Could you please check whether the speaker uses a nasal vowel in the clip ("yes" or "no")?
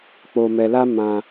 yes